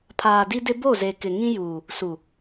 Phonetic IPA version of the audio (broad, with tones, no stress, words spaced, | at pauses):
pʰaː˨ di˦dɪ˦ bo˦˨ze˨kɪ˨ ŋĩ˦juː˨ | su˨